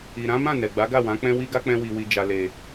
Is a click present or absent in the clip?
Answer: absent